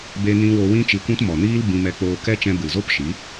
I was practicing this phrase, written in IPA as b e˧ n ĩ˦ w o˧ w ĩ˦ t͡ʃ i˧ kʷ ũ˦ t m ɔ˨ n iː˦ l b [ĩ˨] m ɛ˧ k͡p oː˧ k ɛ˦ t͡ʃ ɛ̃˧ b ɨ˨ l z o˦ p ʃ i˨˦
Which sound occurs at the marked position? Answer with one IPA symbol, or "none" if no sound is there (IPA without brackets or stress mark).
ĩ˧